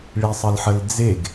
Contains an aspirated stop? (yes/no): no